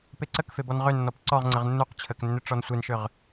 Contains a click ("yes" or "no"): yes